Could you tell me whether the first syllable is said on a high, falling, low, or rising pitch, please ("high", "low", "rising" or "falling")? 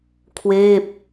falling